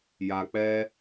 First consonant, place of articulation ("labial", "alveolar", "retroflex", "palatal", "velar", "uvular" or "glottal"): palatal